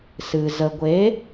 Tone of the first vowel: low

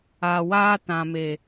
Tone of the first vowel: low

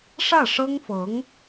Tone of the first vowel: falling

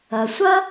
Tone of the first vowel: low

